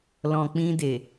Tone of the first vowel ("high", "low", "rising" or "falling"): low